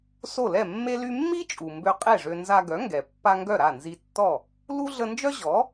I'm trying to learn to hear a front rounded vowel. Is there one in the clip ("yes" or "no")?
yes